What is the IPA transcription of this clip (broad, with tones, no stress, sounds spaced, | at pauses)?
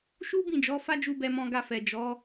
ʃ u˦ b ĩ˦˨ d͡ʒ ɔ˨˦ f a˦ d͡ʒ u˧ b ɛ˧ m ɔ̃˧ ɡ a˧ f ɛ˨ d͡ʒ ɔ˨˦